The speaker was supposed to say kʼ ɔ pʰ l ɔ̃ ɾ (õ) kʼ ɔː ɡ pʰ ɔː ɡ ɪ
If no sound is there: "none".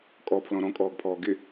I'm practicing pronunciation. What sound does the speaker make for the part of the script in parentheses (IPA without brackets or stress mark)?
ɔ̃